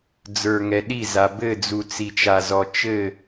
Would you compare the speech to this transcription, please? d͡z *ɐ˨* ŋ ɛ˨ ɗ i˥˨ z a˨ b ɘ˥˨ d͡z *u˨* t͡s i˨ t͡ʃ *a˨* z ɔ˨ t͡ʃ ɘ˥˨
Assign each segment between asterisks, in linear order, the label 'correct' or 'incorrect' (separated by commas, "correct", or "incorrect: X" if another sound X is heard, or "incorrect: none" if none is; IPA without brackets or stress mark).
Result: incorrect: ə˞˨, correct, correct